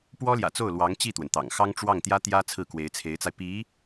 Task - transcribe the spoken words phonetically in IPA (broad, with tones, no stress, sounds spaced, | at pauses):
p w ɔ˥ l j ä̰˨˩ t͡s o˥˩ ʊ̯ l w ɑ˧˥ ŋ t͡ɕ i˥˩ t̪ w ə˩ n t̪ ɑ̰˨˩ ŋ x ɑ˥ ŋ ʈ͡ʂ w ɑ˥˩ ŋ t̪ j ä˥ t̪ j ä˥ t͡sʰ ɹ̩˥˩ k w e˧˥ ɪ̯ t͡sʰ e˧˥ ɪ̯ t͡s a˧ ɪ̯ p i˧˥